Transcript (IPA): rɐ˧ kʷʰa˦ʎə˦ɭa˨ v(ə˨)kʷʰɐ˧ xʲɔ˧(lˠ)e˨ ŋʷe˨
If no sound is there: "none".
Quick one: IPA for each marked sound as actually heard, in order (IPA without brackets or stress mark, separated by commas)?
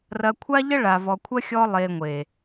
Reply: ɔ˨, lˠ